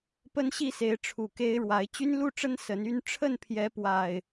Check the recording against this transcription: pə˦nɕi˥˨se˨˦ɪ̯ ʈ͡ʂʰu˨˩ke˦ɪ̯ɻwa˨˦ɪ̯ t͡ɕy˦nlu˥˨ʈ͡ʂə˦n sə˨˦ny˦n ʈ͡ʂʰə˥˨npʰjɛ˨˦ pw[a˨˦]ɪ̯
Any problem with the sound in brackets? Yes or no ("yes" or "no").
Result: yes